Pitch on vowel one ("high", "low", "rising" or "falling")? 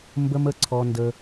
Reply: high